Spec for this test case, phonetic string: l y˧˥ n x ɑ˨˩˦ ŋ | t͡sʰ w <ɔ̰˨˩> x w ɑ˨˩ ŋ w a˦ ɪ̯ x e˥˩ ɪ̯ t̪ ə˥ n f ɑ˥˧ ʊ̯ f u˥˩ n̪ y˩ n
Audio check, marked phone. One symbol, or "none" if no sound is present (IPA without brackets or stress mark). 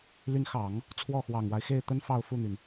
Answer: ɔ˥˩